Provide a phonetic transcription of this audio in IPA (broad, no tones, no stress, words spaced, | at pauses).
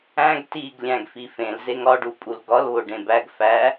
æ̃ɡ tiɡ lʲæ̃ɡfifẽl zeŋɒɖupʼul ɡɒlβo ɖẽbæɡ fæ